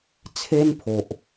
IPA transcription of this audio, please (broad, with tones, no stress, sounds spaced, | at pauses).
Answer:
t͡sʰ e˦ n pʰ o˨ ʔ